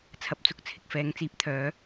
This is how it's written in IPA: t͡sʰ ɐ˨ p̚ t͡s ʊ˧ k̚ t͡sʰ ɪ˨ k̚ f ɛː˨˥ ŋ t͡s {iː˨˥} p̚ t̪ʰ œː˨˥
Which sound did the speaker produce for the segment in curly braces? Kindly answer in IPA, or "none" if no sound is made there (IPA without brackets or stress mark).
iː˨˥